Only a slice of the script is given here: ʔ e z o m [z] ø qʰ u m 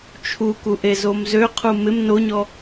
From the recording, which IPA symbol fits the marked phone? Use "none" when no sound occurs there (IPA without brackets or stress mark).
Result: z